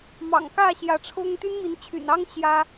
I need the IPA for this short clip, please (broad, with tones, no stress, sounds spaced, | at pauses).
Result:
m ɑ̰˨˩ ŋ k ä˥˨ ɕ j ä˨˦ ʈ͡ʂʰ ʊ˦ ŋ t̪ y˦ n m i˨˦ n t͡ɕʰ y̰˨˩ n ɑ˦ ŋ ɕ j ä˦